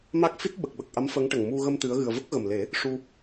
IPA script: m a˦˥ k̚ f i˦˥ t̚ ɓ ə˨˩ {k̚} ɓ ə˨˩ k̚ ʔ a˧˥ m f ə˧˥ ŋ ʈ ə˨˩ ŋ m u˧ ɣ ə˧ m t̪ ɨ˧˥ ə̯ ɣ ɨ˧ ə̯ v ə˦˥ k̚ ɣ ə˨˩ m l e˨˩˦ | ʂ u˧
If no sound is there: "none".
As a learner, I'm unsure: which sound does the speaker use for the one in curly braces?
k̚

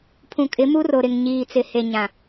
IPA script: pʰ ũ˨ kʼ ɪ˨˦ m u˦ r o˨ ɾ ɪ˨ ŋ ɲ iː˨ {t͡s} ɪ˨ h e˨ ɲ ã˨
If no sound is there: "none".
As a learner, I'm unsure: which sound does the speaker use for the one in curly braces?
t͡s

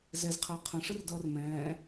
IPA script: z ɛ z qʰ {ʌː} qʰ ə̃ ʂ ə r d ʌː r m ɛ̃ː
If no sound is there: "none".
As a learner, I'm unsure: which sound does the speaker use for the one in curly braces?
əː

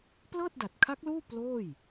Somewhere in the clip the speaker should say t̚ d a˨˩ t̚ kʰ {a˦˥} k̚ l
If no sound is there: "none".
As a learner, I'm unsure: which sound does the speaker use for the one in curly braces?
a˦˥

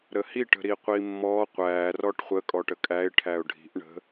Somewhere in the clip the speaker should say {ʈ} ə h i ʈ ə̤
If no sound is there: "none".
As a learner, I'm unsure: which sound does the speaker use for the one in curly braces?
ɾ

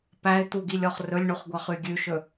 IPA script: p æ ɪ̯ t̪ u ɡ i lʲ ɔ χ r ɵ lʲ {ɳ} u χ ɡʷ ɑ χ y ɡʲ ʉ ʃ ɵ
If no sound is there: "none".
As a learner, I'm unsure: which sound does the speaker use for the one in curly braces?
ɳ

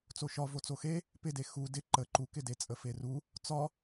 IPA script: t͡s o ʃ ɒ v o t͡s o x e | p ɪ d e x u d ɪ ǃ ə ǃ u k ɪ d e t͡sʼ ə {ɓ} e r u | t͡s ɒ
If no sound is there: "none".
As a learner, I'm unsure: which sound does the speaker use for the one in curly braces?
f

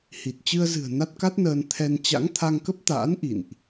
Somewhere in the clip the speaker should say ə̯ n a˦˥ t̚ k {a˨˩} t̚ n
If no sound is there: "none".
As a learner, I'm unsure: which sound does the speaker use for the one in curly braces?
a˦˥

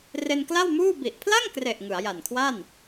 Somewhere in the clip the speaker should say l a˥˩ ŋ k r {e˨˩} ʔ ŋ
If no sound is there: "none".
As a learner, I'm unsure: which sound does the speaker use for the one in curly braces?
e˨˩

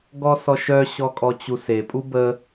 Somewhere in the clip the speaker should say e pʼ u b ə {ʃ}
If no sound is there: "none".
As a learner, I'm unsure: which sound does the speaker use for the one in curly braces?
none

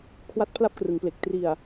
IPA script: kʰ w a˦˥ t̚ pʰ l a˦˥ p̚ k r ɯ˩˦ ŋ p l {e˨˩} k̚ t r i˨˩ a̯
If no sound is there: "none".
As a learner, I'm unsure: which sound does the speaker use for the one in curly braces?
e˨˩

